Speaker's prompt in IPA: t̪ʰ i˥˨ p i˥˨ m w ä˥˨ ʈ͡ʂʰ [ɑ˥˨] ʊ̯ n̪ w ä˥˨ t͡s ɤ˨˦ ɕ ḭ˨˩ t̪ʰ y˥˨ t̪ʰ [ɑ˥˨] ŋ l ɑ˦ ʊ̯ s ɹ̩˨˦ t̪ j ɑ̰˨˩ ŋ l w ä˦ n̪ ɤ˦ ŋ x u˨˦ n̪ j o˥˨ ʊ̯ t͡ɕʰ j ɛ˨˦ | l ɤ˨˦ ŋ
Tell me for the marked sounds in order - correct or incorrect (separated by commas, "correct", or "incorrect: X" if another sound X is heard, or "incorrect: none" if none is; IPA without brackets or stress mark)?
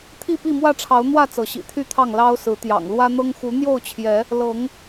incorrect: ɑ˨˦, correct